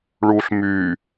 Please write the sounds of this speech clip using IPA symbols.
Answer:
ɭ uː ɬ m yː

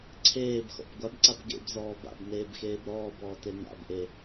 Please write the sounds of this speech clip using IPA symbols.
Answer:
ǀʰ eː b x ɔ̰ b ɡʷ a b ǀ a b ɡ ḛ b z ɔː b a̰ b n eː b x eː b ɾ ɔː b ɔː t e n a̰ b ʔ e

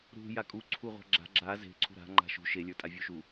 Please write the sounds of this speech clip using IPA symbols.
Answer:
ɾ ṳ j a kʼ u ǀʰ u ʁʷ a̤ ɡ͡ǁ a̤ ɡ͡ǁ a z e̤ ǀʰ ṳ ɾ a̤ ŋ͡ǃ a̤ ʃ ṳ ʃ e lʲ ə˞ tʼ a vʲ u ʃ u

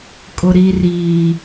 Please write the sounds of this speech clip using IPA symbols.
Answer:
kʼ ʊ˨ ɾ i˨ r iː˨

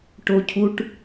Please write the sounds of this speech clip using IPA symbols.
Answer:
ʈ o˧ cʰ u˧ ʈ

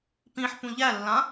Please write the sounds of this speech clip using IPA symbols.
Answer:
p ĩ ħ p ũ ʎ æ lː ã

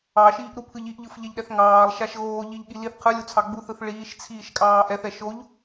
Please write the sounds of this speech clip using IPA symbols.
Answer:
ɑ ʃ iː ʔ ɾ u pʰ ɯ ʎ i ʔ ʎ ɯ f ʎ ɛ ʎ ɗ ɛ θ ŋ ɑː lˠ ʃ a ʃ ɣ oː ʎ i ʎ ɠ i l i θ qʰ ɯ lʲ u t͡sʰ ɑ ɡ͡b u θ ɯ θ ɭ iː ʃ t͡sʰ iː ʃ kʼ ɑː ʔ ɛ θ ɛ ʃ o ʎ

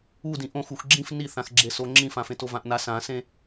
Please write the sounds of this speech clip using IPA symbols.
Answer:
u d ĩ ʔ õ x u x ɡ͡ǁ ĩ f n i θ ã x ɡ͡ǁ e s o ŋ͡ǁ ĩ f ã f ẽ t o v ã ʔ n a s ã s ẽ

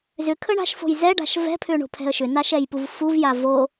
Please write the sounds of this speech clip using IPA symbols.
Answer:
z ʏ kʰ ə ɳ a̤ ʃ f o̤ j z ɛ ɖ a̤ ʃ v ɛ̤ pʰ ʏ ɳ o̤ pʰ ɛ̤ ə̯ ʃ ʏ n a ʃ ɛ j p u v f u v j a v o

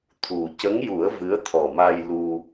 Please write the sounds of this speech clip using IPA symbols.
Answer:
t̪ʰ u˨˩ c ə˧˥ ŋ j u˨˩˦ ə̯ v ɨ˧˥ ə̯ t̪ʰ ɔ˨˩ m a˧ j l u˧

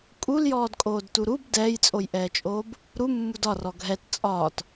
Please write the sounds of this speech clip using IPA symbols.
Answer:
kʼ u l j ɔː d kʼ oː d t u ɾ u b d ɛː j t͡sʼ o j ʔ ɛː t͡ʃʼ oː b | ɾ u mː u d ɒ r ɔ ɡʱ ɛ t t͡sʼ ɒː t

